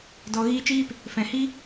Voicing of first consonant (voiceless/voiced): voiced